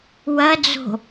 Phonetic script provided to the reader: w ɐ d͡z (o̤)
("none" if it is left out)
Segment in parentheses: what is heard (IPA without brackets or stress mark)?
o̤